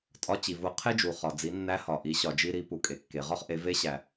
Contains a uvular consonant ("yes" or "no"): yes